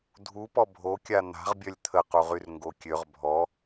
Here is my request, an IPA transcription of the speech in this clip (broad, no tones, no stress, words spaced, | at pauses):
dʱupɔ bʱokʲa n̪a̤ʁbʲœlʲ t̪ʰəquʁyrŋɡo kʲøʁ bʱɔ